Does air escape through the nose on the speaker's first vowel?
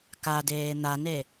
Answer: no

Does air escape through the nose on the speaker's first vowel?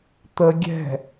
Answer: no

